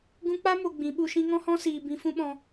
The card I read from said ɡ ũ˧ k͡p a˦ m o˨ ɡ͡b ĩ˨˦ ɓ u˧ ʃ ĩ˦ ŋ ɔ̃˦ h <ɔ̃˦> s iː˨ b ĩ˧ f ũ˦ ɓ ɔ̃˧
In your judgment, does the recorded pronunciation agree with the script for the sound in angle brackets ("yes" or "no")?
yes